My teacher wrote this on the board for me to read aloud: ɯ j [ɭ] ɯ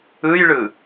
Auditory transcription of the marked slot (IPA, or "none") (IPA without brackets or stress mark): ɭ